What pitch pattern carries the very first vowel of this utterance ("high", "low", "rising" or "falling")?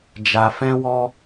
low